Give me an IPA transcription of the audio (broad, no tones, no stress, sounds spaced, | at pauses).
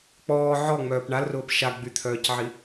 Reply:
k͡p ɔː ʕ ɔ ŋ͡m œː p ɳ a l r ʊː p ʃ a ɡ͡b y t̪ʰ œː c ʕ i